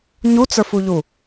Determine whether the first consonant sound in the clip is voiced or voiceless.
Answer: voiced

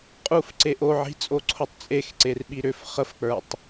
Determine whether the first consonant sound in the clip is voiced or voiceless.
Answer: voiceless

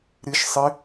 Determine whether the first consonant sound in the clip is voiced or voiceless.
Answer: voiced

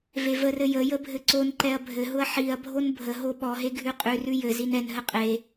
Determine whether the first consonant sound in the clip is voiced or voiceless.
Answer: voiced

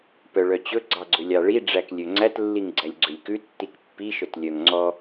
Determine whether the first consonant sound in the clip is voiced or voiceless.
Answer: voiceless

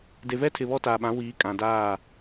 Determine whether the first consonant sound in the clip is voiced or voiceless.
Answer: voiced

